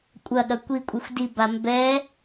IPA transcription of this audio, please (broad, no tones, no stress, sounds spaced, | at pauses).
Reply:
kʷʼ ɐ ɠ ɐ kʷ i kʷʼ i xʷ d i b a m b ɛ